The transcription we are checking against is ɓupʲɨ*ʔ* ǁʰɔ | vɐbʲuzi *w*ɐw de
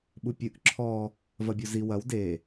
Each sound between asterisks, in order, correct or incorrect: correct, correct

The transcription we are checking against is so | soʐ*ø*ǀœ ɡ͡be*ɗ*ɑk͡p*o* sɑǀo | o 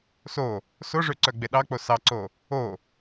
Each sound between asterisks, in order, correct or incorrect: correct, correct, correct

